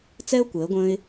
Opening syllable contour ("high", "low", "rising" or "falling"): high